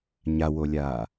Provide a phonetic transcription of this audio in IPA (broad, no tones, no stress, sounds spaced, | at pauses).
ɲ a w o lʲ aː